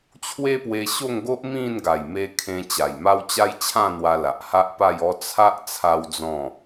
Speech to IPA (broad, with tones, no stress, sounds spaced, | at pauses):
t͡ɕʰ w e˦ p w e˧ ɕ o˥˧ ŋ ɡ o˦ ʔ m ĩ˥˧ n ɡ a˨˩ j m e˧ kʰ ẽ˧ t͡ɕ a˨˩ j m a˦ w t͡ɕ a˦ j t͡ɕʰ ã˥˧ n̪ w a˧ l a˨ ʔ h a˦ ʔ p a˥˧ j ɔ˦ t͡sʰ a˦ ʔ t͡sʰ a˦ w d͡z ɔ̃˥˧